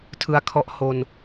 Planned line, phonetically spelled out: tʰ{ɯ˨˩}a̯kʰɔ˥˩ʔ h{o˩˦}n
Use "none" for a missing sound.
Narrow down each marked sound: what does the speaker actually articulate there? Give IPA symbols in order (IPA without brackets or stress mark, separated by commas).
ɯ˧, o˧